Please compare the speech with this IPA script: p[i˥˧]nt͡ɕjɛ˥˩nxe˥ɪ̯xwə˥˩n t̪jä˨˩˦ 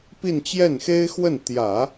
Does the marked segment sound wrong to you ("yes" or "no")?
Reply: no